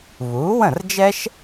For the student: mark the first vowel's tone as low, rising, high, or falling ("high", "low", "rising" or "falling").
rising